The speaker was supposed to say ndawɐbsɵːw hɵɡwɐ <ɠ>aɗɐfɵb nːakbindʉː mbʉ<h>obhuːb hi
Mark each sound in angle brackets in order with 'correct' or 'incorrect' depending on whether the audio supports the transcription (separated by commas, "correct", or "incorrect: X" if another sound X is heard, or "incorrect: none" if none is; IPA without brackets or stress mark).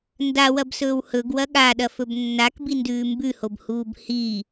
correct, correct